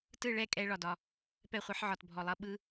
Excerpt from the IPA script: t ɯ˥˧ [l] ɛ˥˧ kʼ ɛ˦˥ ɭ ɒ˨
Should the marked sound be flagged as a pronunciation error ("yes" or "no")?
yes